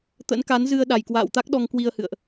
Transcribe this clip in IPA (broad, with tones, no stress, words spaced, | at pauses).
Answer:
t̪ə̰˧˥nka˨˦nzɨ˧ə̯ ɗa˨˩jkwa̰ː˧˨wt̪a˦˥k̚ɗɔ˧ŋ kwi˧ə̯hɨ̰˧˨ə̯ʔ